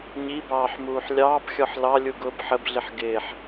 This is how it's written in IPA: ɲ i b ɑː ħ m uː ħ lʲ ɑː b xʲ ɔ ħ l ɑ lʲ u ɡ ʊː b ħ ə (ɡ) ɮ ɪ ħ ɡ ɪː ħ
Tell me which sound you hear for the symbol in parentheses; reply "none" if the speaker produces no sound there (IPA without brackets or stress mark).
b